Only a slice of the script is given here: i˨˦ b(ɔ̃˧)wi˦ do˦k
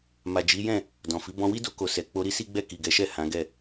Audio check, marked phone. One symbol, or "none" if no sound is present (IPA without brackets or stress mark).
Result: ɔ̃˧